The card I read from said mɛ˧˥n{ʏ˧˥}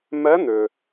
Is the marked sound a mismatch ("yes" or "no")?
yes